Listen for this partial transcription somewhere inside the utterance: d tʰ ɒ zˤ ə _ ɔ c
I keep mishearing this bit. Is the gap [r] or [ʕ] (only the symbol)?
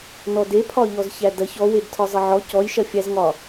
ʕ